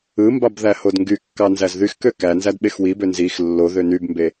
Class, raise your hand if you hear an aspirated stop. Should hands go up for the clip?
no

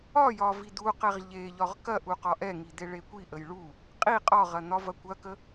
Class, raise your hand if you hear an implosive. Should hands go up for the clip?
no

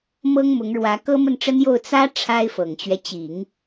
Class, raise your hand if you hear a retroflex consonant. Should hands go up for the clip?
yes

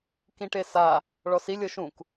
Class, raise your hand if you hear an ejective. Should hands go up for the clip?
no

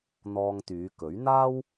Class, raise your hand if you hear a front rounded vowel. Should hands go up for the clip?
yes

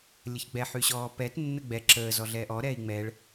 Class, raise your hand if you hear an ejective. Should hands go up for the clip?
no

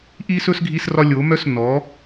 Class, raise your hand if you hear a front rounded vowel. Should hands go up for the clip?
yes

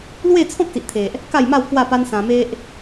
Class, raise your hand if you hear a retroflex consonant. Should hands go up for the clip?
no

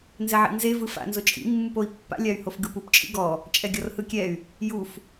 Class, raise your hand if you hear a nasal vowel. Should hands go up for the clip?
no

